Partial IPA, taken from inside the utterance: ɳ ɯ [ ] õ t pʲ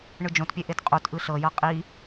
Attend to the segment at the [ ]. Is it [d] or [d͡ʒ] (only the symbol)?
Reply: d͡ʒ